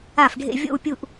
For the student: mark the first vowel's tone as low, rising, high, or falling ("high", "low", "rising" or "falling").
falling